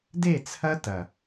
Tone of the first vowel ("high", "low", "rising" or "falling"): falling